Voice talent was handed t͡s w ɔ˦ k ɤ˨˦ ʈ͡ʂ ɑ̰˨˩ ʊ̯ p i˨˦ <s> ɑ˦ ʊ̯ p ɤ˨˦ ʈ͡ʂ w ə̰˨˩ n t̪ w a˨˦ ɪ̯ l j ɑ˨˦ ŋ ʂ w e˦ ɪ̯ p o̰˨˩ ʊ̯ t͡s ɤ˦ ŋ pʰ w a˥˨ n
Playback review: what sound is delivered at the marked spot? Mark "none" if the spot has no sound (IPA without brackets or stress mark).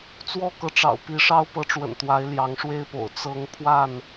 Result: ʂ